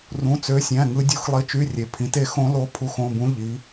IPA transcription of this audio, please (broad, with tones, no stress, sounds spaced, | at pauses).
r ũ˧˥˧ t͡s ø˧˥˧ sʲ æ̃˧˥˧ ŋ ɯ˦˥ dʲ u˦˥ x lˠ i˧˥˧ t͡ʃ y˧˥˧ rʲ e˨˥ pʰ ĩ˨˥ t e˨˥ x õ˦˥ l o˦˥ pʰ u˧˥˧ x õ˧˥˧ b ũ˦˥ ʎ i˨˥